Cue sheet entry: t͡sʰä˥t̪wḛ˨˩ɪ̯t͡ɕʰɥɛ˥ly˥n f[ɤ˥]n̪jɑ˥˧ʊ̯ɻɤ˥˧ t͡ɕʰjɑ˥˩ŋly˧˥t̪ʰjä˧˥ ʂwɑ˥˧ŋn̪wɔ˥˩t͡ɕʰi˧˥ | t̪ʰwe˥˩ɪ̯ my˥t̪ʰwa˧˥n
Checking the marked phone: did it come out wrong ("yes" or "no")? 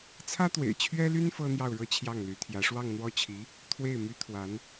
no